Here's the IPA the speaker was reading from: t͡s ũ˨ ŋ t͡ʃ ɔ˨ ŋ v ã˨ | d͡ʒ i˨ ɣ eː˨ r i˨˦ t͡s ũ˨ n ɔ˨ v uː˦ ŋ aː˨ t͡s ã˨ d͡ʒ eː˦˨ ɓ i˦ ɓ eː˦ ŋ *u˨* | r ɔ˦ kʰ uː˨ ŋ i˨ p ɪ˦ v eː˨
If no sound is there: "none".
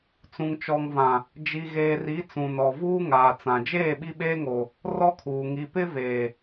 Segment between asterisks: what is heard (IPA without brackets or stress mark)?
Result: o˨